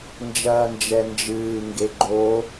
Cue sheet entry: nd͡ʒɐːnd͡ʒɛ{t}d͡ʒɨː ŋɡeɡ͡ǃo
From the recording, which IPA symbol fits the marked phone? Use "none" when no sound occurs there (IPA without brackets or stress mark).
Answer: n